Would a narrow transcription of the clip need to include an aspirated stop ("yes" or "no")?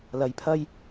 yes